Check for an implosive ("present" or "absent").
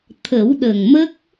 present